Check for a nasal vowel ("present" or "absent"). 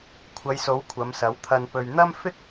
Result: absent